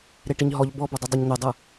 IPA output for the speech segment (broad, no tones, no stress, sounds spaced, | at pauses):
ɾ e ʈ i ɲ ɦ ɔ ʎ b ɔ b o dˤ ɯ dˤ ɤ ɲ n̪ e dˤ ɯ